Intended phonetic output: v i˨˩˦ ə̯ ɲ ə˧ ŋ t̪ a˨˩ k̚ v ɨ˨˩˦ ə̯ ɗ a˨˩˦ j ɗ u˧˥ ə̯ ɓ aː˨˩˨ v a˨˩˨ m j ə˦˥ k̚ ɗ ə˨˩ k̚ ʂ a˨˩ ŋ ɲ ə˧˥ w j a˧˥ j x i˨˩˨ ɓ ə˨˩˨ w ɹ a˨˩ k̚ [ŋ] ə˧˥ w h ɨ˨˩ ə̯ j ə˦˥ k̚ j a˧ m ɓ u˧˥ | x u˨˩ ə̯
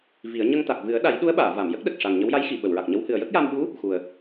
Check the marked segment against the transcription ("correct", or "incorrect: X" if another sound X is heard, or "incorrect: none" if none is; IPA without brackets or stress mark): incorrect: ɲ